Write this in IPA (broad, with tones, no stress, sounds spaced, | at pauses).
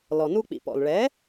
l ɔ˩ n u˧ k͡p ḭ˩ p ɔ̰˩ l ɭ ɛ˩˥